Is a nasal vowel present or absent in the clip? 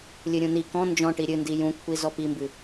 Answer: present